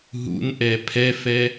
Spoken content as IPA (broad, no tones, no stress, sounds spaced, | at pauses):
ɦ ṵ n ʔ ɛ pʰ ɛ f ɛ